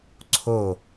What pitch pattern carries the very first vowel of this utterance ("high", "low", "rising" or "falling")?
falling